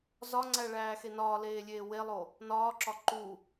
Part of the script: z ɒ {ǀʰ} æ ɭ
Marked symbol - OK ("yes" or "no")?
no